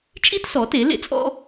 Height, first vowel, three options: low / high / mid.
high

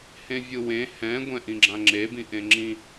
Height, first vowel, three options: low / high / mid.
mid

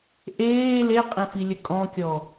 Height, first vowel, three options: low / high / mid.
mid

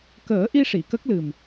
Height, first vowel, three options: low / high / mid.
mid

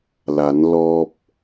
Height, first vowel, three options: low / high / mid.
low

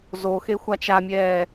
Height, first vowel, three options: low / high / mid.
mid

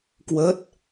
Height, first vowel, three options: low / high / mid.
mid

